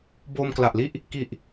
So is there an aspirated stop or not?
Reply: no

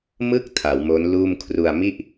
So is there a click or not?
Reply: no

